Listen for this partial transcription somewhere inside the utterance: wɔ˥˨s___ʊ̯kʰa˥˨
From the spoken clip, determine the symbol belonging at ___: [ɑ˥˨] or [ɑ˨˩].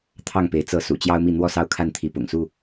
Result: ɑ˥˨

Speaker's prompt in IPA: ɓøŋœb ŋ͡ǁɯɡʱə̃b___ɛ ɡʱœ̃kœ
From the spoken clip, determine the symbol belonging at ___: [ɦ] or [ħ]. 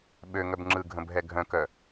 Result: ɦ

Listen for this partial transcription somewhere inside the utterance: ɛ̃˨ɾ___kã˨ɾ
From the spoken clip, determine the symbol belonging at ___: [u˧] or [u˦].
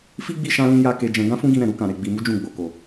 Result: u˧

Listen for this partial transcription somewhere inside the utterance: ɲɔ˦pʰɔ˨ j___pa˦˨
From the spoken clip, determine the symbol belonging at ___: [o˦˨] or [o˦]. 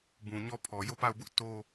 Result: o˦˨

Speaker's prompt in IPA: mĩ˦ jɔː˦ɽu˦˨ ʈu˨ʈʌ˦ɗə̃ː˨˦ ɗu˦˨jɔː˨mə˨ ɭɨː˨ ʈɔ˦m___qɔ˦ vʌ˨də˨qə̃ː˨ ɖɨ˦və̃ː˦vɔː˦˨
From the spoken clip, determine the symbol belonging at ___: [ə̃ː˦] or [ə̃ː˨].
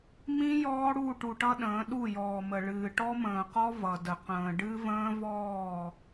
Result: ə̃ː˨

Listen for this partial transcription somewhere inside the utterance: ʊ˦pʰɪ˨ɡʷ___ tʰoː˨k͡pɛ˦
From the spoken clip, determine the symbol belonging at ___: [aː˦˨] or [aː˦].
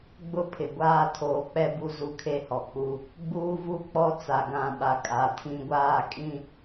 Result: aː˦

